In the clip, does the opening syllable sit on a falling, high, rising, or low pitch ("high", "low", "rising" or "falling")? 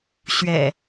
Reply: low